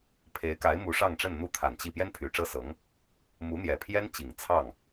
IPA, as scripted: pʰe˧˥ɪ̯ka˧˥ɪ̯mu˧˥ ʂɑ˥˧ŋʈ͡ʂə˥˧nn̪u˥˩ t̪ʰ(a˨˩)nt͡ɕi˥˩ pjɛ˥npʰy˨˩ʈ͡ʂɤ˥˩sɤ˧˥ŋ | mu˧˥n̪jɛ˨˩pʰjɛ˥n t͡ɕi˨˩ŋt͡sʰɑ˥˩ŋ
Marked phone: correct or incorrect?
correct